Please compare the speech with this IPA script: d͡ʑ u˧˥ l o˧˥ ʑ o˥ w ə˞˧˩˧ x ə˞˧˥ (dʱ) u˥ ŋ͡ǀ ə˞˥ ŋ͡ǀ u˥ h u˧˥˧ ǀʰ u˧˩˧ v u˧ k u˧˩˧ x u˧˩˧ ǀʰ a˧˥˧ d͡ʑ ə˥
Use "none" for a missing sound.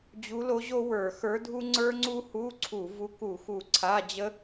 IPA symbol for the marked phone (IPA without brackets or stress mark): dʱ